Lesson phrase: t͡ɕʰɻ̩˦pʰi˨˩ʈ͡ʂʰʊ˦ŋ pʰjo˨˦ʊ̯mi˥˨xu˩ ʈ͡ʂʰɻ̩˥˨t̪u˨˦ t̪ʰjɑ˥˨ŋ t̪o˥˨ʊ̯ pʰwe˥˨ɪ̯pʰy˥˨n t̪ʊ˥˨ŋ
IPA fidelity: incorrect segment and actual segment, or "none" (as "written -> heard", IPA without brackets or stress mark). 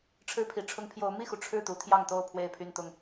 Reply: t͡ɕʰ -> ʈ͡ʂʰ